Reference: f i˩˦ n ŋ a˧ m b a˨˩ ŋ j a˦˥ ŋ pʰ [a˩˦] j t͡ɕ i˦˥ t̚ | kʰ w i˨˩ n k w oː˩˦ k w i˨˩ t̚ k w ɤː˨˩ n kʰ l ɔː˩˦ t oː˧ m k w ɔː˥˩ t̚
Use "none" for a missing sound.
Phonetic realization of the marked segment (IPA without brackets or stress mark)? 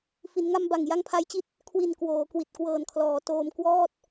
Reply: a˦˥